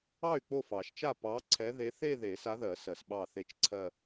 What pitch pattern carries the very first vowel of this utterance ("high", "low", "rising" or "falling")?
falling